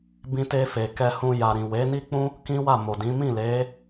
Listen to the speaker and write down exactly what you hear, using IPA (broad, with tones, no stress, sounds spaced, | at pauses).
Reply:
b ĩ˧ t e˧ f e˨ k ɛ˧ h ũ˧ j a˨ ɾ ĩ˨ w e˨˦ n i˦ k͡p ũ˦ | k ĩ˦ w a˦˨ m o˨ d ĩ˨˦ m ĩ˦˨ l e˨˦